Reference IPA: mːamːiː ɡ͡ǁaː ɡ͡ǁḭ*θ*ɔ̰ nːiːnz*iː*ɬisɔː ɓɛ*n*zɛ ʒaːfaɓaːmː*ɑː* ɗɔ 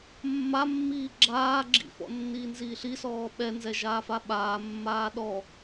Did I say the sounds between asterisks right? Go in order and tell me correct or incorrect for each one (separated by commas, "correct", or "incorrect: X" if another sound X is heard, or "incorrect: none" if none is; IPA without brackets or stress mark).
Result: incorrect: f, correct, correct, incorrect: aː